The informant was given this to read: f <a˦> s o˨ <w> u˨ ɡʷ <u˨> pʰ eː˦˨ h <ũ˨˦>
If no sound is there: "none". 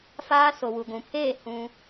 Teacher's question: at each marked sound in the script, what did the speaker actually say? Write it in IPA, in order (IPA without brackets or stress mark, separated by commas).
aː˦, w, ũ˨, ũ˦